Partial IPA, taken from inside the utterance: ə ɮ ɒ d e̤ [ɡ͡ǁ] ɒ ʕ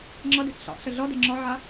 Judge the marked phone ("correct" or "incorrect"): incorrect